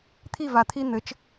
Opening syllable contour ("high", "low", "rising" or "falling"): falling